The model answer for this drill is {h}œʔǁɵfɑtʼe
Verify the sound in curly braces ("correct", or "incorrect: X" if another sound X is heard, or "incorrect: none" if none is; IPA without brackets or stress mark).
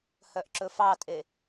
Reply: correct